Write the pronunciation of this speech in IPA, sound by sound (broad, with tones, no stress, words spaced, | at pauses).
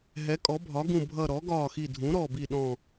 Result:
ɦɛ˩˧kʼɔ˩˧bʱɒ˩˧ɡũ˨˩ bʱʌ˨˩ ɾɔ˩˧ɡɒː˨˩xi˨˩dʱũ˩˧ ɾɔ˨˩bi˨˩ɗɔ̃˨˩